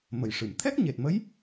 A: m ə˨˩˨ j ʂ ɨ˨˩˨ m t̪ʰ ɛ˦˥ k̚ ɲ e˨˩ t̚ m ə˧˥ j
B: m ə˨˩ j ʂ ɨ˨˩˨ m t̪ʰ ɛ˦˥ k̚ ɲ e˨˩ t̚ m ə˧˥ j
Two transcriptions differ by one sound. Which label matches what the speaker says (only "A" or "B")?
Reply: A